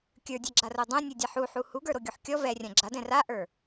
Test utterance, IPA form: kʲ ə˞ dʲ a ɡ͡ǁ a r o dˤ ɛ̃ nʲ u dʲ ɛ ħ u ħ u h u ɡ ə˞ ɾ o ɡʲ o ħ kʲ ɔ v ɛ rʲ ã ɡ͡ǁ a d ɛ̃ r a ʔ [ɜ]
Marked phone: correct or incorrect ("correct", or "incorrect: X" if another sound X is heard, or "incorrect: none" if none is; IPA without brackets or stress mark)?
incorrect: ə˞